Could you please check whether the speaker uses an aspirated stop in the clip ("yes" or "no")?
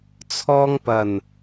yes